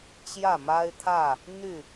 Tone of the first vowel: falling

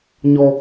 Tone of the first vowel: high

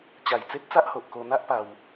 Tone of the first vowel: low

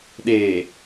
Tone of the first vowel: low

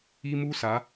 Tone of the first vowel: high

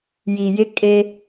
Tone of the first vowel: low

